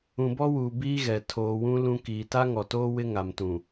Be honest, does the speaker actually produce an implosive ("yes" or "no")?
no